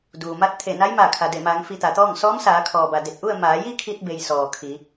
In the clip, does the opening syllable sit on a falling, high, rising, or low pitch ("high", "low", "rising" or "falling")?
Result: low